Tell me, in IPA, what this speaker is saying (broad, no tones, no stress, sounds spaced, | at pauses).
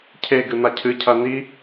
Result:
cʰ e ɡ ɨ n̪ a cʰ ɨ cʰ ɐ n i